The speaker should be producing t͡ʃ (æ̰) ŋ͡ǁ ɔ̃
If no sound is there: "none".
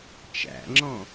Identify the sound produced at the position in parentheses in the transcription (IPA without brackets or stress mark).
æ̰